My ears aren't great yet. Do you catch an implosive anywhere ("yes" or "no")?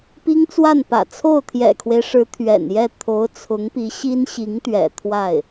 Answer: no